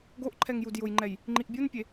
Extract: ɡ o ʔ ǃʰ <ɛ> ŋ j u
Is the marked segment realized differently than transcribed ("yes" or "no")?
no